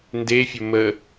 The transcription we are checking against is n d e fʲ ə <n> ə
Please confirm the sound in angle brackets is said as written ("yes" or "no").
no